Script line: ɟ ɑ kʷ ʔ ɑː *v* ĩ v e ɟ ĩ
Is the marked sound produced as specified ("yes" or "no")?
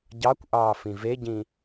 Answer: no